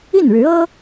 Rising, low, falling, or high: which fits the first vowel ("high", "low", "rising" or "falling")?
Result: falling